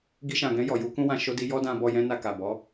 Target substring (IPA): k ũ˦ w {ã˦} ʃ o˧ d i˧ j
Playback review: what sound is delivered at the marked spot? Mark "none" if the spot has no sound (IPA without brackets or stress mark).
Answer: ã˧